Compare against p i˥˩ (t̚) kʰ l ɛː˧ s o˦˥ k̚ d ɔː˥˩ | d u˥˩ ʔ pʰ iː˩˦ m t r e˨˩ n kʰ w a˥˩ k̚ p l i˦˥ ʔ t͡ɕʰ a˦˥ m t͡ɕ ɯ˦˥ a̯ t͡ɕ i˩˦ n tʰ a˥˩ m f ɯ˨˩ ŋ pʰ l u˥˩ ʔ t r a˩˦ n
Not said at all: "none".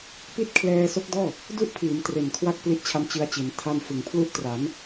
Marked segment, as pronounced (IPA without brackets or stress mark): t̚